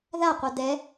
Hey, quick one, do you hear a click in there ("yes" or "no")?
no